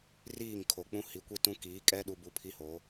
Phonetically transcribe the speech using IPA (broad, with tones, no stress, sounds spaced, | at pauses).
r iː˦˨ ŋ kʰ o˨ k͡p ũ˦ h i˨˦ kʷ i˦ t ũ˦ k iː˨˦ kʼ ɛ˦ ɗ u˦ b u˦ pʰ i˦ h o˨˦